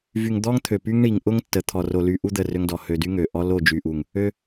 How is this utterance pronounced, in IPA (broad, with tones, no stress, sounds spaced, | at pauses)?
v y˨ ŋ d̪ ɔ˦ ŋ t̪ʰ ø˨ p y˦ ŋ ɳ i˨ ŋ ʔ ʊ˦ ŋ tː ə˨ t̪ʰ ɔ˨ r o˨ l y˨ ʔ u˦ d̪ ə˦˨ r ø˦ ŋ d ɔ˨ h ø˨ d y˦ ŋ ø˨ ʔ ɔ˦ l o˦˨ d͡ʒ y˨ ʔ u˨ ŋ | ø˦